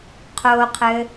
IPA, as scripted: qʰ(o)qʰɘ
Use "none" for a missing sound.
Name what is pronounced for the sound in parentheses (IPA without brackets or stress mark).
o